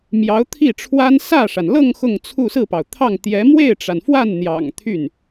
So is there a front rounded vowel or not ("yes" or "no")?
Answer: yes